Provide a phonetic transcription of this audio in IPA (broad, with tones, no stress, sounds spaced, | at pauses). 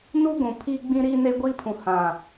n u˦ ɡʷ ũ˨ pʰ iː˦ ɡ͡b ĩ˦ ɾ iː˦ n e˦ ɡʷ iː˦ pʰ ũ˨ h ã˨